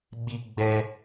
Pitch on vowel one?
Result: high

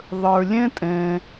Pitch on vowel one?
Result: low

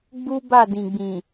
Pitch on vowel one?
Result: high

